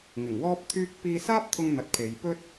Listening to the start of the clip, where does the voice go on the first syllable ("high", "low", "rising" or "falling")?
low